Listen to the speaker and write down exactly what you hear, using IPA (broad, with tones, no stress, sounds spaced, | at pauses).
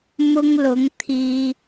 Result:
m ʊ˧ ŋ l ʊ˨˧ ŋ t̪ʰ iː˧